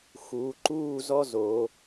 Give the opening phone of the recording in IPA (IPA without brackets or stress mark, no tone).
x